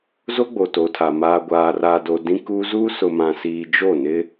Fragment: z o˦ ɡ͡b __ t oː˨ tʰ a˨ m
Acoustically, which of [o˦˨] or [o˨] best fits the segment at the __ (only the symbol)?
o˨